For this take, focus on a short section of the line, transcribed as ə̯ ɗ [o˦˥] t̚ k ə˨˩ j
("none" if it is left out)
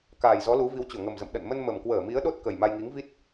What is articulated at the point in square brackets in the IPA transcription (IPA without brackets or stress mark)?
o˦˥